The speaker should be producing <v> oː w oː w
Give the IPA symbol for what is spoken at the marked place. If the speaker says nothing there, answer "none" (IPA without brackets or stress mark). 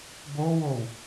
b